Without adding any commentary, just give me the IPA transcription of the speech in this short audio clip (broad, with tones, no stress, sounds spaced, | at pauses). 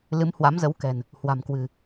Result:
l ɨ˨˦ m h w a˨˦ m z ə˨˦ w k ɛ̤˨˩ n | h w a̤˨˩ m k w ɨ̤˨˩